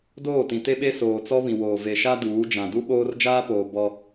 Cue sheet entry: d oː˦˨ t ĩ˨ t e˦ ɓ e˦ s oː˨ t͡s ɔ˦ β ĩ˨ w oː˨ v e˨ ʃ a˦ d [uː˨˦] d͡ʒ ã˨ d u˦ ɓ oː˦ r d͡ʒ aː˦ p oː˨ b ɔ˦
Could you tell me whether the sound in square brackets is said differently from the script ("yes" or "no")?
no